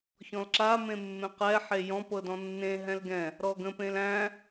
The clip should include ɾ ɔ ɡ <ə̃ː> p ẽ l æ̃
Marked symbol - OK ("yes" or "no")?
no